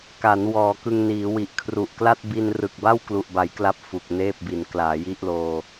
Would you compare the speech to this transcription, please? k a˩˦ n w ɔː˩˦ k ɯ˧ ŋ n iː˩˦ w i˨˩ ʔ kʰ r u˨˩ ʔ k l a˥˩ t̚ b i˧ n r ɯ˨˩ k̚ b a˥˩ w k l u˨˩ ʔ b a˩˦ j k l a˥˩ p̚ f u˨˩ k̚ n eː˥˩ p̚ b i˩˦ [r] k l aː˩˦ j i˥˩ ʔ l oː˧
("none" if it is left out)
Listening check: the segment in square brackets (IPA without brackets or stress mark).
n